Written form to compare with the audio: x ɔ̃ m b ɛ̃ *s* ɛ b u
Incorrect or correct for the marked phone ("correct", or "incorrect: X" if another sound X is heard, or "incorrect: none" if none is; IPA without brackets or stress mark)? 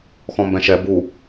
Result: incorrect: ʃ